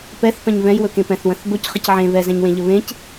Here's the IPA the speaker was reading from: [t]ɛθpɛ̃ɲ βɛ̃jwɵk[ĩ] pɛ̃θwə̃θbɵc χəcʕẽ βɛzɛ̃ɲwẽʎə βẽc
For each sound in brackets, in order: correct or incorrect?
incorrect, incorrect

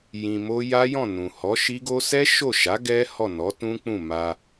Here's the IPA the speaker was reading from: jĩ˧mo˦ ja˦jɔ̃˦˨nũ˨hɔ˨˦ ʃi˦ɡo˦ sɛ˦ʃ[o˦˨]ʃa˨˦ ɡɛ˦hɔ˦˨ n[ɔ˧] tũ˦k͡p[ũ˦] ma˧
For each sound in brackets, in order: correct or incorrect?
correct, incorrect, incorrect

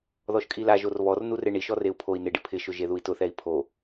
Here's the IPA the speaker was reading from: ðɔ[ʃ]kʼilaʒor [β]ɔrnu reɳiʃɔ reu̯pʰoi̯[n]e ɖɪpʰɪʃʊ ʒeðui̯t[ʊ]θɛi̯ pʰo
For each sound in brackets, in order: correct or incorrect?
correct, correct, correct, correct

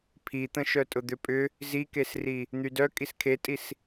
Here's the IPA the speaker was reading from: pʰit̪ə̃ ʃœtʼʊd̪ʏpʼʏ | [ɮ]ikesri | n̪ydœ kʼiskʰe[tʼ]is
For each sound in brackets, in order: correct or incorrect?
incorrect, correct

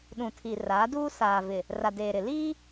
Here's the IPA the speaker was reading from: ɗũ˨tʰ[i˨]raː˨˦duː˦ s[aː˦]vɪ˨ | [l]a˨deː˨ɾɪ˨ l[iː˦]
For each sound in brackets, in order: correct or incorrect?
correct, incorrect, incorrect, correct

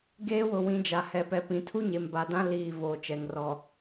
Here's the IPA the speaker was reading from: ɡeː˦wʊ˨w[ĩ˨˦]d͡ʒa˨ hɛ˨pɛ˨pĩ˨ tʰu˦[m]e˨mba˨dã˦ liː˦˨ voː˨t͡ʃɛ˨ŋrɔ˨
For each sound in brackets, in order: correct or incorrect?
correct, incorrect

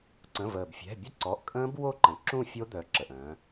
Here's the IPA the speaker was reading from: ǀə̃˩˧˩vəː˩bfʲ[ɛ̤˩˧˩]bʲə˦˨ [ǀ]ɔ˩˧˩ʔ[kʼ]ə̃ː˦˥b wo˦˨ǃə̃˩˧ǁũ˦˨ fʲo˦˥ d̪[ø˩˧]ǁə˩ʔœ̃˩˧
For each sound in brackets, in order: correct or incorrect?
correct, correct, correct, incorrect

